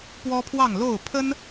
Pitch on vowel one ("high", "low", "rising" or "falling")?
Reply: high